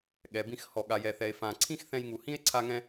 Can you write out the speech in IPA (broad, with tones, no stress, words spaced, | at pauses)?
ɠɛ˩bĩ˧x hɔ˩ɠa˩jɛ˩θɛ˩e̯ fã˩ ǀʰĩ˥xθɛ̃˧jŋu˩hĩ˥e̯ ǀʰa˧ŋɛ̃˧